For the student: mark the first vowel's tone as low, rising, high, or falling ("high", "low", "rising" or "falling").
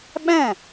falling